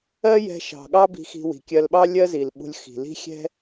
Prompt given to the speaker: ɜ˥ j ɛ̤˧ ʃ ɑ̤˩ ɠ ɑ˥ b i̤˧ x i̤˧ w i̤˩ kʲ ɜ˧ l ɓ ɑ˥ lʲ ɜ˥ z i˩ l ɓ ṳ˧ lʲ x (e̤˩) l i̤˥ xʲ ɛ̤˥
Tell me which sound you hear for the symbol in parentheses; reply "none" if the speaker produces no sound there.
i̤˩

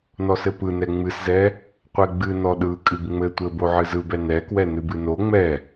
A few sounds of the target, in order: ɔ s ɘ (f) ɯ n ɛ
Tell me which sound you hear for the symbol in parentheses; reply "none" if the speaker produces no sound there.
p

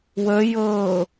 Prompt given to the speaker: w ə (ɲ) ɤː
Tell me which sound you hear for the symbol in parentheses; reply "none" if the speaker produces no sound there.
j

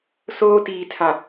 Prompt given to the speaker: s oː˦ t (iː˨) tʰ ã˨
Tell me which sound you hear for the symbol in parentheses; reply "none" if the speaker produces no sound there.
iː˨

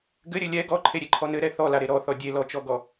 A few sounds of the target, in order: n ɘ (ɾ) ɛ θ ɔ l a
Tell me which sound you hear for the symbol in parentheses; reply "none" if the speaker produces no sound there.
ɾ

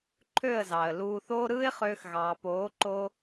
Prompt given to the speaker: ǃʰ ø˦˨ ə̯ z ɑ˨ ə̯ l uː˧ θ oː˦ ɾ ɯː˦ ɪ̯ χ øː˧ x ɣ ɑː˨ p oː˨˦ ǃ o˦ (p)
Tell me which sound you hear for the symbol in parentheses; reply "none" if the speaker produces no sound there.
none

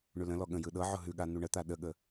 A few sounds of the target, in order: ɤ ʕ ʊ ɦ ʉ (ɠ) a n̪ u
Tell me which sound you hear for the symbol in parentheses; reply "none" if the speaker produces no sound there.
ɠ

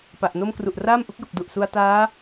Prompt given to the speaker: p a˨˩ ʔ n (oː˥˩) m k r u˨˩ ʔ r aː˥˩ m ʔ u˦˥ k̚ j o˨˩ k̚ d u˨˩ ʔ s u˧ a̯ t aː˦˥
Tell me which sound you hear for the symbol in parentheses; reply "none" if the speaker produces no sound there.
o˥˩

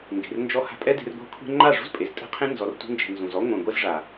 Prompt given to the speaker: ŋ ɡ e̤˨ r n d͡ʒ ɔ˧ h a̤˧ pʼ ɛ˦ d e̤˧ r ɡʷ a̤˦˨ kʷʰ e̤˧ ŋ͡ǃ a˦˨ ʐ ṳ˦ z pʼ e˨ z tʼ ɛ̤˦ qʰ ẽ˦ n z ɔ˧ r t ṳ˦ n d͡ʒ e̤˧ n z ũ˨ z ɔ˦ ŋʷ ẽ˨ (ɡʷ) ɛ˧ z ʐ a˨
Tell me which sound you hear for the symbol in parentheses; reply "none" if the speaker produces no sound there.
ɡʷ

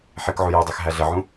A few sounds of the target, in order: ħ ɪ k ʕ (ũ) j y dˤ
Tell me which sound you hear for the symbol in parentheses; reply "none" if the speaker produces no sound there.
u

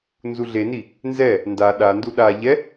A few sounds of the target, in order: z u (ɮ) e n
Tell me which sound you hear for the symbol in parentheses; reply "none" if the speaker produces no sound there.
ɮ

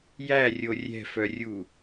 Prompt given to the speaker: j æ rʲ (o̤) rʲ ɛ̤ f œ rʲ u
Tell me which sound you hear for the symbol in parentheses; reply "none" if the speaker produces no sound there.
o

